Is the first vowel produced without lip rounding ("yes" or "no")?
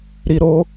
yes